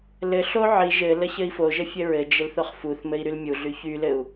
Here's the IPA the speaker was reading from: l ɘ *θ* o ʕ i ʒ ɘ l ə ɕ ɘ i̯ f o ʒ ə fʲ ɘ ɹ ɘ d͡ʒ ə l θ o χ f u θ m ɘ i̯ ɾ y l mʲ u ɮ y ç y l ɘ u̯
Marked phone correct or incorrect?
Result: incorrect